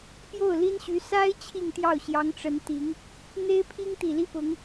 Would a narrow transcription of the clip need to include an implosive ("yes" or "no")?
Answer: no